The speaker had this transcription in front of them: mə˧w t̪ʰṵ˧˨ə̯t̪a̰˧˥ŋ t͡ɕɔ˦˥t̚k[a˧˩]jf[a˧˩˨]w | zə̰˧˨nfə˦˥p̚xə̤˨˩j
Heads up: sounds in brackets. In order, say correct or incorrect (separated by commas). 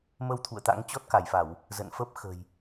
correct, correct